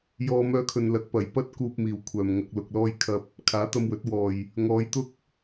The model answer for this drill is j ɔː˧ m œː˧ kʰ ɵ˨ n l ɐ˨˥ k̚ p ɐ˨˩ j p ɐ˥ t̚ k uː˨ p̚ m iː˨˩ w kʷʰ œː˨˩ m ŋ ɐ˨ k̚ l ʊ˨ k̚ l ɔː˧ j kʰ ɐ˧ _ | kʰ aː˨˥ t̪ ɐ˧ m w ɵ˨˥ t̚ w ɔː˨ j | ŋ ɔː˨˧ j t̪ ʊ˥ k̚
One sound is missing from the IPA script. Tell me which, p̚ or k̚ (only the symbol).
p̚